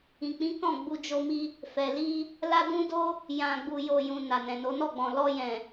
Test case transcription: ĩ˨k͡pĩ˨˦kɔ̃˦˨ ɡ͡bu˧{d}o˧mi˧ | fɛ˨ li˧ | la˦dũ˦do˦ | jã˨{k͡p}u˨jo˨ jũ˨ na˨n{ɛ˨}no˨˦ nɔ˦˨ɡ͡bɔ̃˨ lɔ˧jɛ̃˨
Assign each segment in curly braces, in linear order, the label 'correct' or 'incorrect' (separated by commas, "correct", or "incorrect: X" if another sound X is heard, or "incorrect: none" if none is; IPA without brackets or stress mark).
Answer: incorrect: d͡ʒ, incorrect: ɡ͡b, incorrect: ɛ̃˨